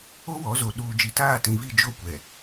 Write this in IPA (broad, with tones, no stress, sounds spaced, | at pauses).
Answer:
o˦ w ɔ˨˦ z o˨ ɗ uː˨ d͡ʒ i˨ t aː˦˨ t ĩ˨ v i˦˨ d͡ʒ o˦ kʷ ɛ˨